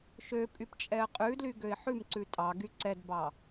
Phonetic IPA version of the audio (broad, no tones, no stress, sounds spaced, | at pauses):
ʃ ø pʼ y p t͡ʃʼ ɛ ə̯ qʼ ʉ d l y ɡ ø ɪ̯ ħ ʉ m ǀ ʉ tʼ ɑ ɡ y ǀ ɛ d b ɑ